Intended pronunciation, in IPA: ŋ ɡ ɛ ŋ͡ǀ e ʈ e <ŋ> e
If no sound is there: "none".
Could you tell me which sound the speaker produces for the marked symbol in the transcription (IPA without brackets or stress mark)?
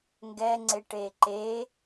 ǃ